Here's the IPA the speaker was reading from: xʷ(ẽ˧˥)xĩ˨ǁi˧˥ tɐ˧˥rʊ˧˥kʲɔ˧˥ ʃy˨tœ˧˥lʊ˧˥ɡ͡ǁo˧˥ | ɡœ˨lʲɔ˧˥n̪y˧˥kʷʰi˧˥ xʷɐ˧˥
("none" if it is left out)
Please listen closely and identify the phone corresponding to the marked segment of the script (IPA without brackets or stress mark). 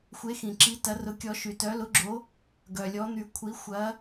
e˧˥